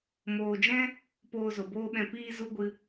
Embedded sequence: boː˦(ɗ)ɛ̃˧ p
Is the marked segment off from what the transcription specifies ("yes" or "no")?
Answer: yes